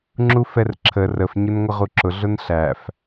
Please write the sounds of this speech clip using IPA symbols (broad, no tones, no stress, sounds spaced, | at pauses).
ŋ͡ǁ u f ɛ r ǁʰ ə r ə f ɲ ʊ n ŋʷ ə ʁ u ǁ ʊ ɮ ʊ n ɬ æ f